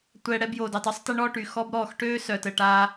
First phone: tʷ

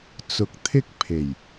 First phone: t͡s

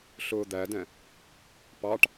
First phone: ɬ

